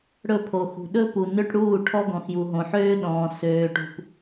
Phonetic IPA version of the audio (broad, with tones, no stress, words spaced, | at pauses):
ɽɵ˦˨pʰo˨xṳ˨ ɗɵ˦pu˨nø˦ʈ ɽuː˦˨ʈʰɔ˦ɡɔ̃˨xju˨ ɦõ˨ħøː˦ɗɔ̃ː˨ søː˨ʈṳ˨p